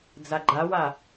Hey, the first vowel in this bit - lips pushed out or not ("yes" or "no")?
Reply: no